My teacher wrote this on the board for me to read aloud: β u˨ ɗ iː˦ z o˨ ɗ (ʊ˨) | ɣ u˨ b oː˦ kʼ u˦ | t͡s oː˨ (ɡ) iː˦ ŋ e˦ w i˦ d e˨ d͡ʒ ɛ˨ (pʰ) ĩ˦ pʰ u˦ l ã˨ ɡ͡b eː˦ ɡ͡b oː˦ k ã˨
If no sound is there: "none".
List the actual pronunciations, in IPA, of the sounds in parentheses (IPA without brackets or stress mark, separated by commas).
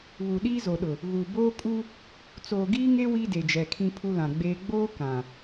ʊ˨, ɡ, kʰ